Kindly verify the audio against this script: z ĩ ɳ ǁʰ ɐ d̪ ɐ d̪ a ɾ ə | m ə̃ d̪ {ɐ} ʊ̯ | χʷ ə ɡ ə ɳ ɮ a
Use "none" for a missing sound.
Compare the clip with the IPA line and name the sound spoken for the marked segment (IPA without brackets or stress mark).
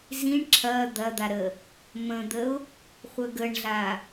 ə